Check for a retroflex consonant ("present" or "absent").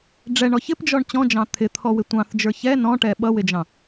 present